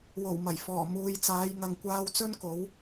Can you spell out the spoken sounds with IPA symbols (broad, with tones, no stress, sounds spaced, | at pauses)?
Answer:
w o˨˩ w m ɐ˨˩ j f ɔː˨˩ m uː˨ j t͡s aː˨˧ j ŋ ɐ˨ ŋ kʷ aː˧ w t͡s ɵ˥ n k o˨˥ w